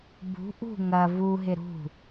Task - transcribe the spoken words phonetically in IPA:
b ṳ ʔ ṳ ŋ ɐ v u ɦ ɪ ɾ ṳ

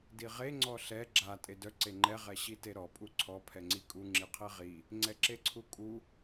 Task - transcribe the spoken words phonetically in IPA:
d i ʁ e ŋ͡ǀ ɔ ɬ ɛ ɡ͡ǁ a tʼ e d œ ǀ e ŋ͡ǃ ɛ ʁ ɛ ɕ i t e ɾ ɔ pʼ u ǀʰ ɔ pʰ ɛ ŋ͡ǀ i kʼ u ŋ͡ǁ i qʰ e ʁ i | ŋ͡ǀ ɛ ǁ e ǀʰ u kʼ u

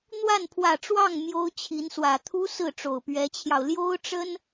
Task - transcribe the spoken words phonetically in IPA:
n̪ w a˥˩ n pʰ w ä˨˩ ʈ͡ʂ w ɑ˥˩ ŋ m j o˥ ʊ̯ t͡ɕʰ i˧˥ n s w ä˨˩ t̪ʰ u˥ s ɹ̩˥˩ ʈ͡ʂ o˨˩ ʊ̯ p ɥ ɛ˧˥ t͡ɕʰ j ɑ˧ ʊ̯ l j o˥ ʊ̯ ʈ͡ʂ ə˥ n

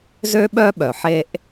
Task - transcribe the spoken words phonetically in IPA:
z ø˥ ɓ œː˥ ɓ œ˩ ħ eː˦ ʔ

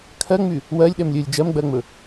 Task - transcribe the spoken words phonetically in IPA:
kʰ ɜ ŋ͡m y | w ɜ lʲ ɗ ɛ m lʲ ɵ lʲ d͡ʒ ɜ m ɡ͡b ɜ ŋ͡m ɵ

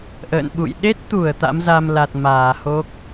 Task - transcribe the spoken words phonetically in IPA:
ʔ ə̰ː˧˨ n ɓ ṵ˧˨ j ɗ e˦˥ t̚ t̪ u˧˩ ə̯ t̪ a̰˧˥ m z a˧ m l a˨˩ t̚ m aː˧˩ h o˦˥ k̚

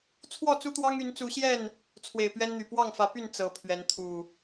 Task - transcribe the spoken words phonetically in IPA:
t͡sʰ w ɔ˥˨ t͡s u˦ t̪ w ɑ˦ ŋ y˨˦ n t͡s u˨˦ ɕ j ɛ˥˨ n | t͡sʰ w e˨˩ ɪ̯ p ɥ ɛ˦ n n̪ y˨˩ p w ɑ˥˨ ŋ f ä˨˦ p y˥˨ n t͡s ɤ˨˦ pʰ ɥ ɛ˨˦ n t̪ʰ u˨˩

